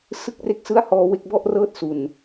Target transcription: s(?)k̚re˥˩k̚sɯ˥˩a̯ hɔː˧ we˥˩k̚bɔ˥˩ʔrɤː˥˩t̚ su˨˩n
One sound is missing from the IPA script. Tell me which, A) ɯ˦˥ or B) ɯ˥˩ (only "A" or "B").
B